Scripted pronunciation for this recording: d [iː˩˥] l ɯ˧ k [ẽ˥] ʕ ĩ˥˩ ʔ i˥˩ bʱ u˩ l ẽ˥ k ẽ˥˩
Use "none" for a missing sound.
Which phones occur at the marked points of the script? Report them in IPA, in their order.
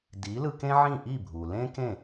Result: iː˩˥, ẽ˥

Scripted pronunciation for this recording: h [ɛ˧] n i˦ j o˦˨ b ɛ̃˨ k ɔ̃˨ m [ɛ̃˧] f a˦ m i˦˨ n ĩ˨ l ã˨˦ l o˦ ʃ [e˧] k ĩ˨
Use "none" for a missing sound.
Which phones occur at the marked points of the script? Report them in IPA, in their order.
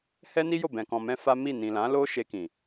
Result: ɛ˦, ɛ̃˧, e˧

